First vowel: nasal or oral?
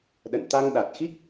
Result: oral